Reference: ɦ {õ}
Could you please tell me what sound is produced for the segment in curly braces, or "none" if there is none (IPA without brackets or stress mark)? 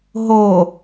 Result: o